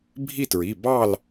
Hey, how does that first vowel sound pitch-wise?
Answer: falling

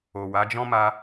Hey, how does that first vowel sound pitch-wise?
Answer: low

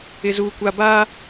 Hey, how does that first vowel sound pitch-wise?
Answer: low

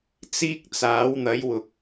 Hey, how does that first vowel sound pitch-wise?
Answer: high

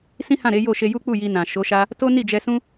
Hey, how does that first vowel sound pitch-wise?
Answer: high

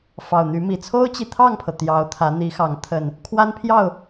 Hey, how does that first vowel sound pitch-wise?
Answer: low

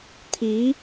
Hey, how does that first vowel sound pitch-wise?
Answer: rising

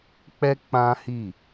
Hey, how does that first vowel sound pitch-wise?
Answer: high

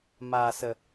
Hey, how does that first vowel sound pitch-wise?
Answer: low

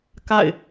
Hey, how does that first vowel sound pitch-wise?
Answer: falling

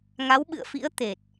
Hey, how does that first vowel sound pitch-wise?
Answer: rising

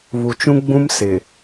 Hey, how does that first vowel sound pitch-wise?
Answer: low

